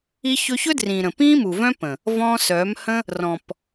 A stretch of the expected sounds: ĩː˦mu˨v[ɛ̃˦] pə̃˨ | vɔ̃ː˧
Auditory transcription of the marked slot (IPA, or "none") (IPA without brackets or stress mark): œ̃˦